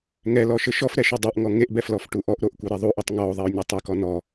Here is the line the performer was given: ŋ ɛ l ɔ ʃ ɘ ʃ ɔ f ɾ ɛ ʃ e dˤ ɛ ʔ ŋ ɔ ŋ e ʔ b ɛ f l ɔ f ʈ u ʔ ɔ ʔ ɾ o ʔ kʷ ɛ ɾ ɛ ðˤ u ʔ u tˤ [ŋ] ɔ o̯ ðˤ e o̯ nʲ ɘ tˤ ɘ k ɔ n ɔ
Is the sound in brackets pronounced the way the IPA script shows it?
yes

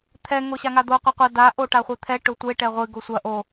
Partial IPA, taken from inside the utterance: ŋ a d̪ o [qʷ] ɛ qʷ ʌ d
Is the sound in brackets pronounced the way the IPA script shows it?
yes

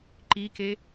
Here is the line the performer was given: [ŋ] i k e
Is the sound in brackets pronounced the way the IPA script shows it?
no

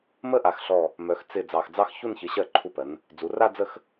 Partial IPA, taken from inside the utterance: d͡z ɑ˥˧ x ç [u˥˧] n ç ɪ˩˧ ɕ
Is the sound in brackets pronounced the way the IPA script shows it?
yes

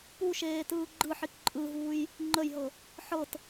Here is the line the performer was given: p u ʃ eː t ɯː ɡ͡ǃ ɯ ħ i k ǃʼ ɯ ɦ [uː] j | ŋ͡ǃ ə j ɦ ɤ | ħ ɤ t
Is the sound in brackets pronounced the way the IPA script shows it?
yes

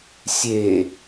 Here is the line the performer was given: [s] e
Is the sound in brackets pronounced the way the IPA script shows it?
no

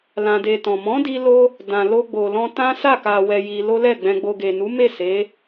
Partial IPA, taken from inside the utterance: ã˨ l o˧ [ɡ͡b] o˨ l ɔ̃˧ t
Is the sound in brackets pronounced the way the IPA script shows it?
yes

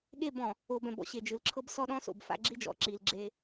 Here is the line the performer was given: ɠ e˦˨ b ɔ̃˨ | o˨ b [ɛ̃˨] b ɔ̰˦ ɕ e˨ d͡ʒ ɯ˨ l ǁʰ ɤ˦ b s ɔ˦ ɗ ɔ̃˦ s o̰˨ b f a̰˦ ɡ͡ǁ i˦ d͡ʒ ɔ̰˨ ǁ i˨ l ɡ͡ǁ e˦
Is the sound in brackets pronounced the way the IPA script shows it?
yes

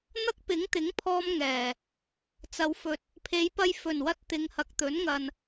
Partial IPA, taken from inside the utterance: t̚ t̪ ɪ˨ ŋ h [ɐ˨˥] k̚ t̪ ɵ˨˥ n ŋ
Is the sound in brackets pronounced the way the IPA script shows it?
no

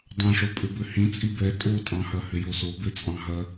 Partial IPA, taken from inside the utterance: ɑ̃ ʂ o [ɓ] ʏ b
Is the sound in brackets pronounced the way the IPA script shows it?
no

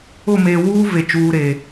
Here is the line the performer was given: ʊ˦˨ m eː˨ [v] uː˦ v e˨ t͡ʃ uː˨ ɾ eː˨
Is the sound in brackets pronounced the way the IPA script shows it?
no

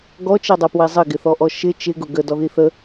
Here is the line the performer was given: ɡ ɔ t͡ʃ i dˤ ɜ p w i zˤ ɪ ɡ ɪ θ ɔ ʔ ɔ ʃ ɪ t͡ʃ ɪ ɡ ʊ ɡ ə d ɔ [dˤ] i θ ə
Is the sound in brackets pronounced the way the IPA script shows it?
no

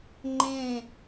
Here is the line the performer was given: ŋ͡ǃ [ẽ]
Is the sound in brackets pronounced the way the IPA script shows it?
yes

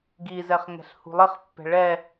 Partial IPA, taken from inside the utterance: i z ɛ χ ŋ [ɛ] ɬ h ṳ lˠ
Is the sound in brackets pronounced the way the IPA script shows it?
no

